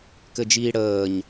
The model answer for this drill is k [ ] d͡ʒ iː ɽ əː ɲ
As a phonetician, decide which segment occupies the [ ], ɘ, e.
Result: ɘ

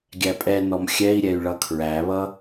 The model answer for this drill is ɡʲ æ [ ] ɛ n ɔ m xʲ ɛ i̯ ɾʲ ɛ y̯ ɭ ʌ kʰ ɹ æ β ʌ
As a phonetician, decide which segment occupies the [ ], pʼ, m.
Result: pʼ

